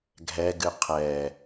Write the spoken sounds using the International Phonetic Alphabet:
ɡʱ ɛ ɡ ɨ qʰ ɛ

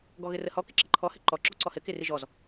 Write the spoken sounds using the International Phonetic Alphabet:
ɡ ɔ ɣ ɘ r ə h ɔ k ɪ ǁ ɪ ǃʰ ɔ h ɘ ǃ ɔ ǁ ɔ ǀ ɔ h ɘ k ɪ r ɪ ʒ ɔ z

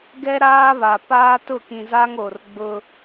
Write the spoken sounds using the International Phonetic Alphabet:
ɡ ɛ˦ ɾ aː˦ β a˨ p aː˦ t ʊ˦˨ k ĩ˨ z a˦ ŋ o˨ r ɡ͡b ʊ˦

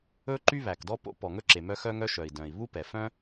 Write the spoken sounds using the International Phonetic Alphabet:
ɵ˥ ǃ y˥ β æ˩ k d ɔ˥ p o̰˥ p ɔ˩ ŋ ɵ˥ ǁ e˩ m œ˥ x œ˥ ŋ œ˥ ʃ œ˩ i̯ d œ̃˩ i̯ β u˥ p ɛ˩ f œ̃˥

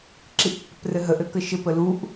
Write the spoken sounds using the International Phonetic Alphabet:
ǁ i ʔ pː ɘ p r ɘ ɦ ə ʔ ɘ k ə ʃ ɘ p ə l u ʔ

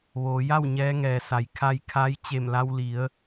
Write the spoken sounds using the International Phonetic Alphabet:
ʋ oː˩˧ j a˥˨ w ɲ ɛː˧˥ ŋ ɛː˩ s a˩˧ j kʰ a˧ j kʰ a˧˥ j t͡ɕ e˧˩ m l a˧ w l i˩˧ ə̯

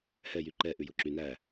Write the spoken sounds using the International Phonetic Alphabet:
h ɛ j y ǃ ɛ ʔ ʉ j o ǁ y n æ

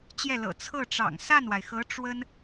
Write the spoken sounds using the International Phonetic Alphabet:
t͡ɕ j ɛ˥˩ l ɤ̰˨˩ t͡sʰ ɤ˥˩ ʈ͡ʂ ɑ̰˨˩ ŋ s a˥˩ n w a˩ ɪ̯ x ɤ˧˥ ʈ͡ʂ w ə˥ n

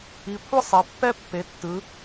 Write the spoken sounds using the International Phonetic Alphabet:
i˩˧ kʷʰ ɯ˥ sˤ e˩˧ pː ɛ˥ pː e˩˧ tː ɯ˩˧

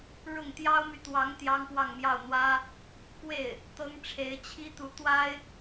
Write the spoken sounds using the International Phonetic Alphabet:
ɻ ʊ˥˩ ŋ t̪ j ɑ˥ ʊ̯ m y˨ t̪ w ɑ˧˥ ŋ t̪ j ɑ˥ ŋ p w ɑ˥˧ ŋ m j ɑ˥˩ ʊ̯ n̪ w ä˥ | k w e˥˩ ɪ̯ | t̪ ɤ˥ ŋ ʈ͡ʂʰ e˧˥ ɪ̯ t͡ɕʰ i˥ t̪ u˧˥ t̪ w a˥ ɪ̯

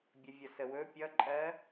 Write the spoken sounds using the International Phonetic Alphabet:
bʲ ə vʲ ʌ s ə w ɵ pʲ ʌ ǃʼ ɜ

